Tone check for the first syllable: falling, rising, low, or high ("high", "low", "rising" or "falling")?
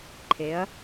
rising